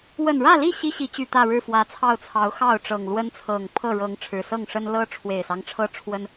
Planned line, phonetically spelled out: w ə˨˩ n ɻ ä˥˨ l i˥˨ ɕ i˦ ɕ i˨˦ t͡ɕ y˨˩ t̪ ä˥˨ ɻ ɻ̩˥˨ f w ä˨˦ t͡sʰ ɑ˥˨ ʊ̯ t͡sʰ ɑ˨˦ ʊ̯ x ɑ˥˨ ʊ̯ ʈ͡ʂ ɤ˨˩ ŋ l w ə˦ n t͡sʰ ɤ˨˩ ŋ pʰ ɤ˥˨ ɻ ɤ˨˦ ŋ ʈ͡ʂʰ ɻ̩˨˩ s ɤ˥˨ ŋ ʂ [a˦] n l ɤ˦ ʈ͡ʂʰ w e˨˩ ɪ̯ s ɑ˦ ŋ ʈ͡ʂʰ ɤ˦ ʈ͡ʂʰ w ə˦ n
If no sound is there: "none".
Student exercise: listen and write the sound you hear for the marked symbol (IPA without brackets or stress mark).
ə˦